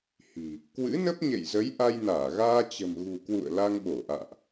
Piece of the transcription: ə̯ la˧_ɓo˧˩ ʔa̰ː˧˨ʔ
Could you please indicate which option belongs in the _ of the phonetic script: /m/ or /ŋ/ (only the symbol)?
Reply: ŋ